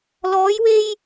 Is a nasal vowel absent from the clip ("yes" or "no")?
yes